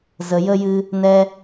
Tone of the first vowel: low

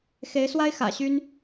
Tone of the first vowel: rising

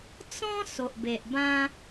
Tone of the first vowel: high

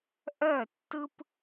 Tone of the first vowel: falling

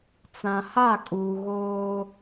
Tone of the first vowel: low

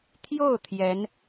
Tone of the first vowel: falling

